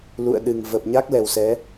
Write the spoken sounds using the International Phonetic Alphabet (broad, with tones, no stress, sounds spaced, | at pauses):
l ṵ˧˨ ə̯ ɗ ɨ˨˩ ŋ v ə˨˩ p̚ ɲ a˦˥ k̚ l ɛ˨˩ w s ɛ˨˦